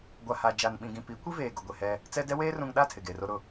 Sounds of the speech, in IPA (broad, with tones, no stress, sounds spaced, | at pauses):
ɡʷ a˨ h a˨ d͡ʒ a˨ n ɓ ĩ˨ ɡ ĩ˨ p i˨˦ kʷ i˦ v eː˨ ɡ ʊ˨ ɡʷ e˨ h ɛ˦ | t͡s ɛ˦ d ɛ˦ w eː˦ r ũ˨ ŋ ɗ a˦˨ tʰ ɪ˨ ɡ e˨ r o˦ ɾ ʊ˦